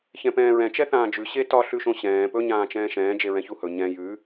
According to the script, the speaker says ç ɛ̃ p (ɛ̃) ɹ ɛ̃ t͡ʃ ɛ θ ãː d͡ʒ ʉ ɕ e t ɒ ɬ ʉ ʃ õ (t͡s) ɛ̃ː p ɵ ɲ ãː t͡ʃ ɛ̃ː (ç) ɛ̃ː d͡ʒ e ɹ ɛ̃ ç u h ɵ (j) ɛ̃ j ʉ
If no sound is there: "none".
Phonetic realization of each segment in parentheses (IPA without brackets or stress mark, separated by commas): ɛ̃ː, ɕ, ʃ, ɲ